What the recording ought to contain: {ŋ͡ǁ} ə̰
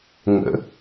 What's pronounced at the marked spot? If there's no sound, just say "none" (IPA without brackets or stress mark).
ŋ